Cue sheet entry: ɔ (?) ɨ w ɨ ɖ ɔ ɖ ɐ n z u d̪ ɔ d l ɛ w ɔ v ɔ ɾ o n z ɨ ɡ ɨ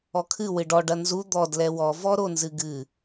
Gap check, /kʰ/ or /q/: kʰ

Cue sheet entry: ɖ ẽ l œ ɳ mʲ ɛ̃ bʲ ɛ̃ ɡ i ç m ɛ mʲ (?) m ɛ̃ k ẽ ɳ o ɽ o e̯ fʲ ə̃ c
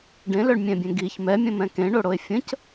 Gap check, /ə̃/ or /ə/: ə̃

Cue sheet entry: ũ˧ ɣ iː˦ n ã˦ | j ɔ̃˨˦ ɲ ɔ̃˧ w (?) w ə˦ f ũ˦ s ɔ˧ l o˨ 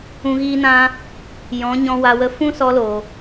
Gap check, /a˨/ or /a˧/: a˧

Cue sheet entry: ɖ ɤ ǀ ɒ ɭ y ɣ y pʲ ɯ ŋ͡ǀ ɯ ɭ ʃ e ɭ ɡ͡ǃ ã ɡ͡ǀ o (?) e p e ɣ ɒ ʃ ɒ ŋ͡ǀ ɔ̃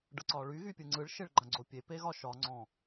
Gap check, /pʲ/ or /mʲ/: pʲ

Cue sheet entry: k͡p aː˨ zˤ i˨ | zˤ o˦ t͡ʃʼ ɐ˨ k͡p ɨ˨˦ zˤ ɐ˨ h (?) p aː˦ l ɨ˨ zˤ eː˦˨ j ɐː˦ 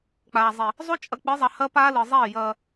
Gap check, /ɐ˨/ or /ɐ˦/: ɐ˦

